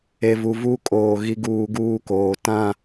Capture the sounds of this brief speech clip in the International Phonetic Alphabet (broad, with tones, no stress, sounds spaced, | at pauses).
e˨ v u˨ v u˦ kʼ oː˨ ɣ i˦ ɡ uː˦ ɡ uː˦ k oː˨ t ã˦˨